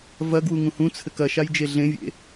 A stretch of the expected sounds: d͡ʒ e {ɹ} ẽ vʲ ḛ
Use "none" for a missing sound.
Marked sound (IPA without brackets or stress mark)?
ɮ